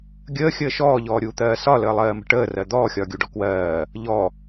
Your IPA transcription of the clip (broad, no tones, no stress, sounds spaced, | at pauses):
ɡʲ əː xʲ əː ʃ ɔː ʎ ɔː ɾʲ uː t̪ ɜː s ɒ l əː lˠ ɜː m ə̤ ʈ əː r ɜ d̪ ɔː xʲ ɒː ɡʲ u ɖ ɔ k w ɜː | ʎ ɔ